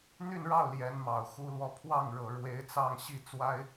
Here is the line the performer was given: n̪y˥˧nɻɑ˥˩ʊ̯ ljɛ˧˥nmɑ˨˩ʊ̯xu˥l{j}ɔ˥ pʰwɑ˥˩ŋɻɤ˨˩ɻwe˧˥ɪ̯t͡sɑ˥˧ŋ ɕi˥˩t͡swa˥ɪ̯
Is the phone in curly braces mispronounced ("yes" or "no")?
yes